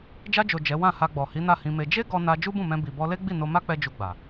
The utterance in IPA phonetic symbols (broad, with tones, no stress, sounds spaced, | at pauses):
d͡ʒ a˧ d͡ʒ o˨ d͡ʒ ɛ˨˦ w ã˦˨ h a˧ ɡ͡b ɔ˨ h i˨˦ n a˦˨ h ĩ˧ m e˧ d͡ʒ e˦ ɡ ɔ˧ n a˧ d͡ʒ u˦ b ũ˦˨ m ɛ̃˧ b i˨ b ɔ˧ l e˦ ɡ͡b i˦˨ n o˧ m a˦ k͡p ɛ˧ d͡ʒ u˧ ɡ͡b a˨